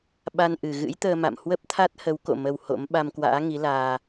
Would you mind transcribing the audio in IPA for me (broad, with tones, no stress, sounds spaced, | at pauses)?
ɓ a˧ n ʔ ɨ˨˩ ɣ ɨ̰˧˥ j t̪ əː˧ m a̰˧˨ m h w ə˦˥ p̚ t̪ʰ a˦˥ t̚ h ə˨˦ w k o̰˧˨ m ə˧ w h o̰˧˥ m ɓ a˧ m k w a̰ː˧˥ ŋ i˨˦ l aː˧